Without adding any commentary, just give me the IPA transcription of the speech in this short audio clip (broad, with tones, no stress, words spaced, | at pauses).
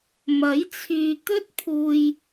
mɐ˨˥j t͡sʰyː˧t̪ɵ˥t̚pʰuː˧j